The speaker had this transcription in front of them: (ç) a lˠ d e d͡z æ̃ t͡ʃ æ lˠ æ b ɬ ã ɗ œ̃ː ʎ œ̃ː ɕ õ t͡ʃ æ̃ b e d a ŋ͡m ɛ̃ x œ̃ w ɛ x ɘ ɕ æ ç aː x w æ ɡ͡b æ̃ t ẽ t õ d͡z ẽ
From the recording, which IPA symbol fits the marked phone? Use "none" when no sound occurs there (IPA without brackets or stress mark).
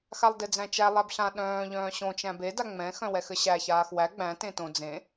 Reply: x